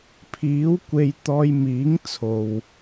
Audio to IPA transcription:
pʰ iː˨˥ w kʷ e˧ j t̪ ɔː˧ j m iː˨˥ ŋ t͡sʰ o˨ w

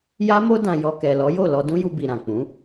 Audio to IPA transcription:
j a˦ m o˦ d ã˧ j ɔ˧ k ɛ˨ l ɔ˨˦ j o˦˨ l ɔ˧ d ũ˦ j u˧ b i˨ ɾ ã˨ k͡p ũ˨˦

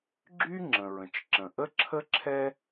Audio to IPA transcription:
ɡ͡ǁ y˥ ŋ͡ǁ ə̃˩ ɹ ə̃˩ t͡ʃ ǁ ə̃˩ ʔ ə˥ ǁʰ ə˥ ǁʰ ɛ˥

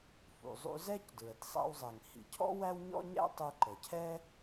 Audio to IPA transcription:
f ṵ˩ zˤ ṵ˧ z ɛ˥ c d ɹ ə˩ t sˤ æ̰˧ w zˤ ɛ˩ ŋ h ḭ˩ cʰ ɔ̰˥ w æ˥ w ɲ ɔ̰˥ ɲ æ̰˥ tˤ u˧ ǃ ə˩ cʰ ɛ˥

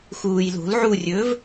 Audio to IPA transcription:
x uː j l o̤ l ʕ u rʲ ɵː v

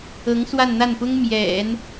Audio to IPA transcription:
ɤ˧˥ ŋ s w a˥˧ n n̪ a˥˩ n p ʊ˥ ŋ m j ɛ̰˨˩˦ n

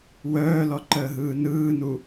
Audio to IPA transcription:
w œː l ɔ ǃ əː ɦ ɯː n ɯː n u

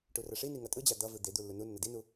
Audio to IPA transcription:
ʈ u r ʌ ʂ i n i ŋ ʌ tʼ ɯ d͡ʑ a d̪ ʌ v ɯ d̪ e d̪ u lː u n u nː ʌ d i n u

